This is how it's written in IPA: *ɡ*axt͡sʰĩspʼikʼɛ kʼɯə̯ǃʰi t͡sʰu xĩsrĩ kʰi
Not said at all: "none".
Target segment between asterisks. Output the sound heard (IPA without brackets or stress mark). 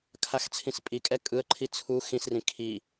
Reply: kʰ